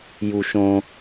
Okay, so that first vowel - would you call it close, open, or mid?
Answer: close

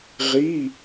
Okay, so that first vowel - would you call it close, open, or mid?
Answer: close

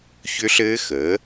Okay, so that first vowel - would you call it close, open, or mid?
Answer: close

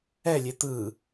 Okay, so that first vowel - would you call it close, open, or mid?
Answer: mid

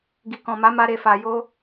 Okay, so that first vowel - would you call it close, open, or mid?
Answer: close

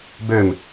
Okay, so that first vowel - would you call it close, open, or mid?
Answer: mid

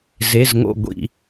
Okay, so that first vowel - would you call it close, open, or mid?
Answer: mid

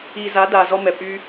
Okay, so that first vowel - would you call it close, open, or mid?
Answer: close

